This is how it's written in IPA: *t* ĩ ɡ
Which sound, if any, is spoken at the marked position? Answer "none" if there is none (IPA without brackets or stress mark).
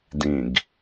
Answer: d